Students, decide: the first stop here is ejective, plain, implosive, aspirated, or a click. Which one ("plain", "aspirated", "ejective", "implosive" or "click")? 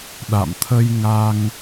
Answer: implosive